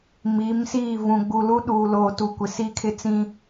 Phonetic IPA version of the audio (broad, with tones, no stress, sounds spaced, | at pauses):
m i˨˦ m s iː˦˨ v ũ˨ ɡ͡b u˨ l u˦ ɗ uː˨ l oː˨ t u˨ kʷ ɪ˨ s iː˦ kʰ ɪ˦ t͡s ĩ˦